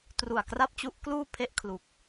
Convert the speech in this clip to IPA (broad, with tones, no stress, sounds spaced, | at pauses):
t r u˨˩ a̯ k r a˥˩ p̚ t͡ɕ u˦˥ ʔ k l uː˥˩ pʰ e˥˩ ʔ kʰ l u˨˩ k̚